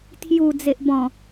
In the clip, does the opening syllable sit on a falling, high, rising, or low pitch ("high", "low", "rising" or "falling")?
low